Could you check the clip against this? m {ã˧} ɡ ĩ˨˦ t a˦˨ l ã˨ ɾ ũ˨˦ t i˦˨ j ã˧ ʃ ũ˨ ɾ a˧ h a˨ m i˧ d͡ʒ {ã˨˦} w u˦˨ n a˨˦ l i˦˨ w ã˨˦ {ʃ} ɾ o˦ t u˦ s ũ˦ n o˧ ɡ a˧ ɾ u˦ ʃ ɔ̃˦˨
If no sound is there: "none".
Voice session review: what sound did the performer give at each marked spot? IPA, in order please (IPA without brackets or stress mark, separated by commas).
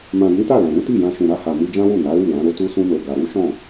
ã˨, ã˦, none